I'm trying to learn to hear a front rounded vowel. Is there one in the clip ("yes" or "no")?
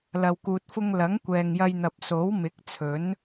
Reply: no